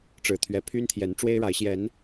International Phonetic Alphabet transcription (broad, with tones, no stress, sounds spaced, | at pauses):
ʈ͡ʂ ɻ̩˨˩ t̪ʰ ɥ ɛ˨˦ pʰ y˦ n t̪ʰ j ɛ˨˦ n ʈ͡ʂ w e˦ ɪ̯ ɻ a˨˦ ɪ̯ ɕ j ɛ˨˦ n